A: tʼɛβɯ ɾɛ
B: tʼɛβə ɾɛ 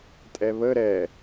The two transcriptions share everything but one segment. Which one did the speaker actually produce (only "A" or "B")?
B